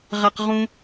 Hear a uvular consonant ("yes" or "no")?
yes